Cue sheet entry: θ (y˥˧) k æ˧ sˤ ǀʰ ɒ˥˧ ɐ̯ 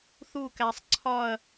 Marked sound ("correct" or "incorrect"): incorrect